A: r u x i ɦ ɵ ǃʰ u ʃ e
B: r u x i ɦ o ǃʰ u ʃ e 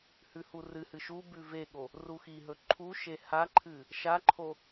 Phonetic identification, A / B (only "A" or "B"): A